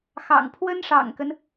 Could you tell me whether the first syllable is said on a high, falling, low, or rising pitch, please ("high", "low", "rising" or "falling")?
low